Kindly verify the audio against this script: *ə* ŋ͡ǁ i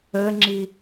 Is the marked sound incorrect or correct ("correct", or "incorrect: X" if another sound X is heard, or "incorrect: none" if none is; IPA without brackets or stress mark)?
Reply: correct